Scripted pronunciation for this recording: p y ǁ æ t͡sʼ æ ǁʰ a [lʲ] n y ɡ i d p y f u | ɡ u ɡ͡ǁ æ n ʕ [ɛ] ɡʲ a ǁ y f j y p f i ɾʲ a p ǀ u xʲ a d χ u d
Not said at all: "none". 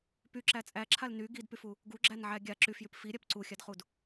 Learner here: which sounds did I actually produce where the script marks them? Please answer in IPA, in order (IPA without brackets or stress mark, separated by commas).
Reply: l, æ